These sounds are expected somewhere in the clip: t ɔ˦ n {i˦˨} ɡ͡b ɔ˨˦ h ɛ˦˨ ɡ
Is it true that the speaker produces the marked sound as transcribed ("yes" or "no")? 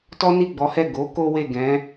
yes